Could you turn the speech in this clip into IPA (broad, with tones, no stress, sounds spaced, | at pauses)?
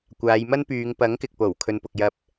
kʷ aː˨˧ j m ɐ˥ n p yː˨˧ ŋ p ɐ˨˥ ŋ k ɪ˨ k̚ p o˨˩ w kʰ ɵ˧ n p ʊ˧ k̚ j ɐ˥ p̚